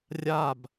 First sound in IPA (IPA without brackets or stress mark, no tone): rʲ